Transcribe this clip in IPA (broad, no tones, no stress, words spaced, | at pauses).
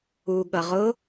uɠʌʁʊ